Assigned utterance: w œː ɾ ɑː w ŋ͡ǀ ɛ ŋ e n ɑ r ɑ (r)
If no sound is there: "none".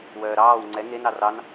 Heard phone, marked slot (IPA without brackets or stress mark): n